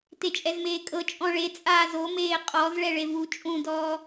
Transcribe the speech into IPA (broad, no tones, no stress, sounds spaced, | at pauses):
t e t͡ʃʼ ɛ z m eː kʼ ɤ t͡ʃʼ ɔ̃ ɭ e t͡sʼ aː z o m eː qʼ ɔ z ɭ ɛ ɭ e v u t͡ʃʼ ũ d ɔː